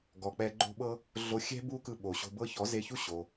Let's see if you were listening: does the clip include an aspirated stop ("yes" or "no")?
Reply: no